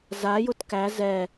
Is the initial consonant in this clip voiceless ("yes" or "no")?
no